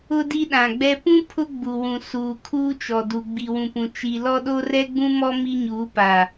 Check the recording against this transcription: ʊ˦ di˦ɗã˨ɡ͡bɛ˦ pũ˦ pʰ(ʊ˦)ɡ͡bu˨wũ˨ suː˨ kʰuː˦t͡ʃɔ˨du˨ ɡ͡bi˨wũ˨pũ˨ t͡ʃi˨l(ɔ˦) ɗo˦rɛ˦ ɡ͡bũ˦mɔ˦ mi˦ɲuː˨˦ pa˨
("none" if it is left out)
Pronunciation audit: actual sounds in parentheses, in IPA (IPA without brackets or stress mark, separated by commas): ʊ˦, ɔ˦